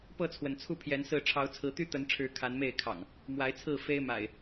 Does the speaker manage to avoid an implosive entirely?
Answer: yes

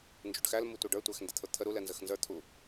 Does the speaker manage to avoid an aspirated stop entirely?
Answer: no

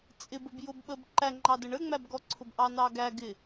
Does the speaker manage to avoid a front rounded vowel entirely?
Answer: yes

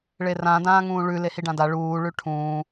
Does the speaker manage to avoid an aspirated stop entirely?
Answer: no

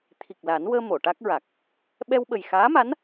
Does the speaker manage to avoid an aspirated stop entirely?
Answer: no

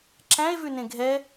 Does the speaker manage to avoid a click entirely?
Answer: no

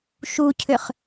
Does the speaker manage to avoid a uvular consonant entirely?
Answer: no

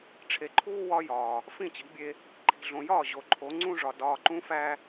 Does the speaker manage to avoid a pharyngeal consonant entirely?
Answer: yes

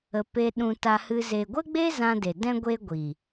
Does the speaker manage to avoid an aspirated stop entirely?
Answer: yes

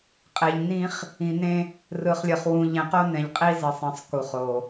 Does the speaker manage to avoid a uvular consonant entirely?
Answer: no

